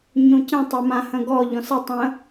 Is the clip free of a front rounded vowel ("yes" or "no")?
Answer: yes